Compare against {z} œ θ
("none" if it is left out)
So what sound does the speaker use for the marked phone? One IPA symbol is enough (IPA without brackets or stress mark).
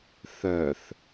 θ